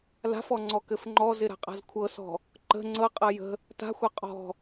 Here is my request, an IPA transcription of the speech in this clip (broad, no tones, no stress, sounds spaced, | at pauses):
l a̤ f ɔ ŋ͡ǀ ɔ k ɘ f ŋ͡ǃ ɔ z ɪ ɾ a̤ qʼ a̤ z kʷʰ ɤ s ɔ̤ | ǃ ə̤ ŋ͡ǀ ɤ qʼ ɤ j ə̤ | t a̤ xʷ ɤ qʼ ɔ̤